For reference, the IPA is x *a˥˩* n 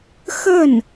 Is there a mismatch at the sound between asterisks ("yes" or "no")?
yes